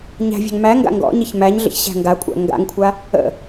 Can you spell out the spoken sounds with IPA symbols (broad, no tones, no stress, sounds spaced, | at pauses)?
ɲ æ̤ vʲ a̤ ŋ m æ ŋ ɡ a̰ ŋ ɡ ɔ̰ ɲ ɪ ç m æ ɲ ɮ ə̰ ç ɕ æ̤ ŋ ɡ a kʷʼ æ̰ ŋ ɡ a̰ ŋ kʷʰ a | ə̰